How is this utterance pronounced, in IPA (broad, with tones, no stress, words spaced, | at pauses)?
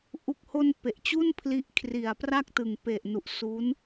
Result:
ʔu˨˩k̚ho˧n pe˨˩ʔt͡ɕu˥˩npʰli˦˥ʔ kʰri˨˩a̯pra˥˩k̚tɯ˨˩ŋ pe˨˩ʔ nu˨˩ʔsu˦˥n